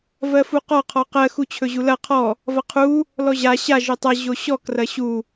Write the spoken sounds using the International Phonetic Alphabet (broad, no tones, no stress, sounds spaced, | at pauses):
v ɜ f u q ɔ qʰ ɔ q ɜ x u t͡ɕʰ ɵ ʑ u l ɐ qʰ ɔ | v ɐ qʰ u | l ɔ ʑ a ɕ a ʒ ɵ tˤ ɐ ʑ o ɕ ɔ k r ɐ ɕ u